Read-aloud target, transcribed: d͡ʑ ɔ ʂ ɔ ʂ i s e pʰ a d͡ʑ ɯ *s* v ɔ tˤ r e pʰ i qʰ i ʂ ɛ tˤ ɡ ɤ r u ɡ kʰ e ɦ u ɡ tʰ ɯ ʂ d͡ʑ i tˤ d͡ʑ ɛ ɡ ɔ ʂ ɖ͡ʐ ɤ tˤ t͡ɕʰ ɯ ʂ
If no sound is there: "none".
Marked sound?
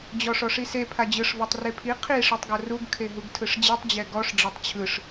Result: ʂ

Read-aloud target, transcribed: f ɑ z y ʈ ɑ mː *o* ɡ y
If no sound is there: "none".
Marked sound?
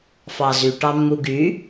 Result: u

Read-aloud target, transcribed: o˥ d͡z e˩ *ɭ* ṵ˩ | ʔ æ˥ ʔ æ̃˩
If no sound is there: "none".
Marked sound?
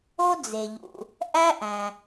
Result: ʎ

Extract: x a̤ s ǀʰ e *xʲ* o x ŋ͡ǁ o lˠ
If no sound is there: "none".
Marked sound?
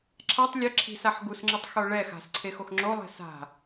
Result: x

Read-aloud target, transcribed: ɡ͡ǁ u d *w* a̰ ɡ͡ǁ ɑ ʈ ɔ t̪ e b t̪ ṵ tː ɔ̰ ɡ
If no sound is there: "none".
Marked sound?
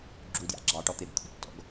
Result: j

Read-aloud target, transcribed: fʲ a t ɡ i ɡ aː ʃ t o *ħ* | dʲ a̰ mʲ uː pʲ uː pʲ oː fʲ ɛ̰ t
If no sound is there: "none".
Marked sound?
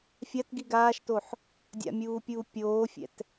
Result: ħ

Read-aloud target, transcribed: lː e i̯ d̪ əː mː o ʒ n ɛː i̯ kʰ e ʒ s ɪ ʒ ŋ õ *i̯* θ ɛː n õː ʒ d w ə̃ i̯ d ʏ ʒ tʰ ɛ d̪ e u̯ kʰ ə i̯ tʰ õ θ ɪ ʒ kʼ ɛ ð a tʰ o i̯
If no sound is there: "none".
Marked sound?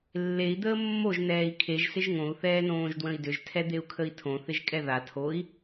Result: u̯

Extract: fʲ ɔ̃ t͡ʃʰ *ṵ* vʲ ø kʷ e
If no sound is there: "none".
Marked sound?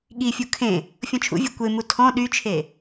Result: ṵ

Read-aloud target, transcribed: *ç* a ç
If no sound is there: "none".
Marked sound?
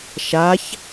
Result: ʃ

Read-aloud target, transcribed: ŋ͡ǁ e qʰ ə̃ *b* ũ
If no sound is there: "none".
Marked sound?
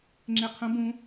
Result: b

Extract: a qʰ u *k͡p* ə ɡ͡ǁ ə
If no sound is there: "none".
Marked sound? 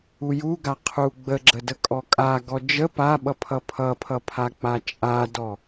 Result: ɡ͡b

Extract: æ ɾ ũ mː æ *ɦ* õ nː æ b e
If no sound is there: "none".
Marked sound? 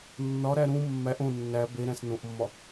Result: ʔ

